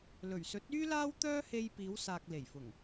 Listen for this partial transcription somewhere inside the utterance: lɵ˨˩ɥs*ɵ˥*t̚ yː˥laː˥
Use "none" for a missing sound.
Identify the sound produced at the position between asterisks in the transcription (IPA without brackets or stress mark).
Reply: ɵ˨˥